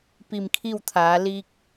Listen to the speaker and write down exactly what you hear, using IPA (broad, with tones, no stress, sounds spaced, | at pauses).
p i˧˩ m kʰ i˥˨ w t̪ʰ aː˩˧ l i˧ k̚